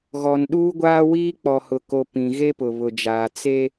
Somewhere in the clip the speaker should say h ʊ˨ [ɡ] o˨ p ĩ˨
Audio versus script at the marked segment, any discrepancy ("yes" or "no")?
yes